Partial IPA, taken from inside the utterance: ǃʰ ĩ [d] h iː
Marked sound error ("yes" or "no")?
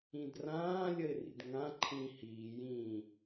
yes